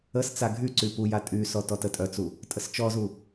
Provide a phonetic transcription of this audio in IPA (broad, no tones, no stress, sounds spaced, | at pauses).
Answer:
ə s t͡s a ɡʱ y ǀ y p u j a tʼ y s ɔ t ɔ t ə tʼ œ t͡s u | tʼ ə s t͡ʃ ɔ z u